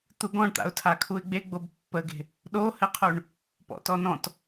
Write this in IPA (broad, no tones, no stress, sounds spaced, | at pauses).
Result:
t̪ u ɡ ɔ̃ ɳ t̪ a̰ ʊ̯ tʰ a kʰ u ɪ̯ ɡ͡b e ɡ͡b o b pː ə ɡ e̤ | ɗ o h ɘ qʰ u ɳ | p ɔ̰ t ɔ n ɔ̃ t